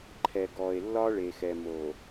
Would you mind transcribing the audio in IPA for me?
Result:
ǃʰ ɛ˨ ɡ ɔ˨ e̯ lː ɒ˦ ɭ e˨ x ɛ˨ m o˨

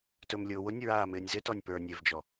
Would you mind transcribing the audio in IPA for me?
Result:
t ɵ m lʲ ʊː w ʊ nʲ ɹ aː m ɪː nʲ z ɪ t ɔ nʲ p ə˞ nʲ e v d͡ʒ ɔ

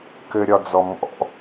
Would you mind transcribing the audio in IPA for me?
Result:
k ɘ ɾʲ ɒ d͡z ɔ m ɔ̰

